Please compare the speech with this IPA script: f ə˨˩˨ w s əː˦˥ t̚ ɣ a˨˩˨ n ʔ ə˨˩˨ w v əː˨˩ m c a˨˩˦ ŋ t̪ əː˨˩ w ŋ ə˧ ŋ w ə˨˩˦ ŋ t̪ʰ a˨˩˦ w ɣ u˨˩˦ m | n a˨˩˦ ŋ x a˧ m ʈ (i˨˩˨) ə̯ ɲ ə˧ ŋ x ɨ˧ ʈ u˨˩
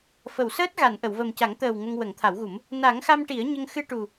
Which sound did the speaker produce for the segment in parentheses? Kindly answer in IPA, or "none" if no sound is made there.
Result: i˨˩˦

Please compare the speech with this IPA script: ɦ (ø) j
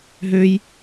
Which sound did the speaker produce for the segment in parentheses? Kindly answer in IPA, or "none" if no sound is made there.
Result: ø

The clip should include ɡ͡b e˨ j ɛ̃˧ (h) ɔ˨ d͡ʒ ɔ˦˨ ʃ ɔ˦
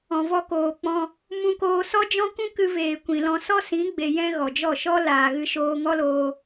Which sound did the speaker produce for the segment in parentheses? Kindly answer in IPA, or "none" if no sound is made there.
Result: ɣ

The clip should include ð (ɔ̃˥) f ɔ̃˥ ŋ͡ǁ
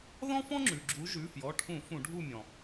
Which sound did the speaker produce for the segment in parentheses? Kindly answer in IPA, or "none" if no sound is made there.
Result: ɔ̃˥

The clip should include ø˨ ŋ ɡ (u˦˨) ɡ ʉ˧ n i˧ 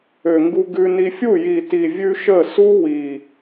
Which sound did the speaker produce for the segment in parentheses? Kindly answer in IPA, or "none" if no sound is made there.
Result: u˧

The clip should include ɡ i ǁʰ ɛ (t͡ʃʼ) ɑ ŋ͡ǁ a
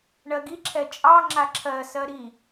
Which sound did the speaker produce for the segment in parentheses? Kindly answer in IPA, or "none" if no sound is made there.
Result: t͡ʃʼ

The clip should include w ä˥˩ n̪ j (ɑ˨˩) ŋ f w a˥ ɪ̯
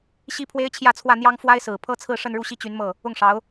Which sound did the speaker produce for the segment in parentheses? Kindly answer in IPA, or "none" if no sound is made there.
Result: ɑ˥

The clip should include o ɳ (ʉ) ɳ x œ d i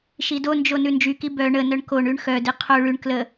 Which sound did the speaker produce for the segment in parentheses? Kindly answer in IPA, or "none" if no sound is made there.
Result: ʉ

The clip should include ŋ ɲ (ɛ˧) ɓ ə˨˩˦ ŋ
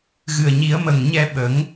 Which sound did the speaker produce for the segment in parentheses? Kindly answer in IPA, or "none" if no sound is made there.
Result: ɛ˧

